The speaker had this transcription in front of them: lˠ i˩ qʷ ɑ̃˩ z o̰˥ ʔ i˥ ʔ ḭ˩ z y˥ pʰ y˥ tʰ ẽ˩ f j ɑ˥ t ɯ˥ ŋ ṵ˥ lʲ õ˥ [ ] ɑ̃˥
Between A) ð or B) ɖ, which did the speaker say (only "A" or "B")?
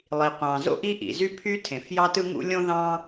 A